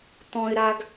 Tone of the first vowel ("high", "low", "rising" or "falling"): high